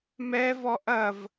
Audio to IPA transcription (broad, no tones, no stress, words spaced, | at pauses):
mɛvɔ ʔɐv